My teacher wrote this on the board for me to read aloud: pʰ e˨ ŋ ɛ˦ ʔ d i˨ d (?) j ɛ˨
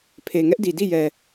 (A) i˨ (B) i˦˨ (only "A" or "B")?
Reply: B